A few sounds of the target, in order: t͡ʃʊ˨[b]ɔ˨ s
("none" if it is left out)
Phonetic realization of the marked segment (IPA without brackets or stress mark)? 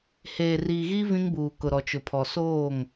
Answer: pʰ